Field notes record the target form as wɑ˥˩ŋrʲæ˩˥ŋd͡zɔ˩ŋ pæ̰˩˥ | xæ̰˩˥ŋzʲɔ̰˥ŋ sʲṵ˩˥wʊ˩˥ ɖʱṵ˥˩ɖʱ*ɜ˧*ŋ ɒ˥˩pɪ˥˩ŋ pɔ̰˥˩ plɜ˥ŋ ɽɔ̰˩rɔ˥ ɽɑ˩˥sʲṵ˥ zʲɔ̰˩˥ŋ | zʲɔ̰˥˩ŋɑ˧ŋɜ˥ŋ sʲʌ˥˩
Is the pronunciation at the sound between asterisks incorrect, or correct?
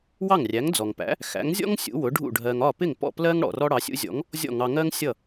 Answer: correct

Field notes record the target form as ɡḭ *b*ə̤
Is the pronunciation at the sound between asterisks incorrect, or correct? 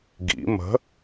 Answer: incorrect: m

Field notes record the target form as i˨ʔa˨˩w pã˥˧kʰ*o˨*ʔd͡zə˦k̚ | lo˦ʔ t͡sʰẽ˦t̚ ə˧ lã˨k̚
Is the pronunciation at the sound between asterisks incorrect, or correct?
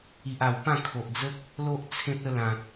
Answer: correct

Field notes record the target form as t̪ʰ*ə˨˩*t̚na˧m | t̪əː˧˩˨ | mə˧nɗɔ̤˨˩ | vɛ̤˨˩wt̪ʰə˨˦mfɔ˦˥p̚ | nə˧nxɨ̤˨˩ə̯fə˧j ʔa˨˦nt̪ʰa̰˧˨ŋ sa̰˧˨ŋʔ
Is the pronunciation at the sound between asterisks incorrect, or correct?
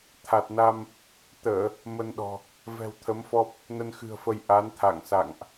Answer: incorrect: a˨˩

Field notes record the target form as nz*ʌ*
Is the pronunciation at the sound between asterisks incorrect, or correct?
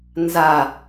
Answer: incorrect: a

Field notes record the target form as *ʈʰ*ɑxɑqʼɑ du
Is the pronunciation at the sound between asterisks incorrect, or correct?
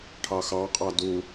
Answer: correct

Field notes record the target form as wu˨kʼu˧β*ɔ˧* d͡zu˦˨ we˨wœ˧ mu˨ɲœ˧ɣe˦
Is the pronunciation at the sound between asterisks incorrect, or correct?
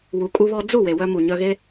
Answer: correct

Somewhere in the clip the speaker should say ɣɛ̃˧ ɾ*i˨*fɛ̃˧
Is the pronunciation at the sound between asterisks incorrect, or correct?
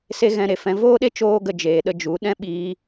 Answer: incorrect: e˨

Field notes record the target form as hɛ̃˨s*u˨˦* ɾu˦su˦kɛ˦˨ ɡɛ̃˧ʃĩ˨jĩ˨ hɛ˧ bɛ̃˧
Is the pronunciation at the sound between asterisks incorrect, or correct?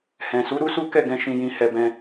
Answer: correct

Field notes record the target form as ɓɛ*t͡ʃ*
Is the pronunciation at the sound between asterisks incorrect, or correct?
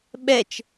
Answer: correct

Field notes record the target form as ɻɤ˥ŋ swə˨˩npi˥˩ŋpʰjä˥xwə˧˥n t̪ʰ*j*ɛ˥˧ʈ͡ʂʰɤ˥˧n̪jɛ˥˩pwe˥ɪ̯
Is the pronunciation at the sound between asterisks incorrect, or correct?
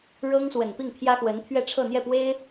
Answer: incorrect: ɥ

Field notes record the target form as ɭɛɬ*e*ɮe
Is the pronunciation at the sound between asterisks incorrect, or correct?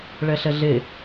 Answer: incorrect: ɛ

